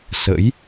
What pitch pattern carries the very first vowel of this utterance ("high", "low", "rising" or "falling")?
rising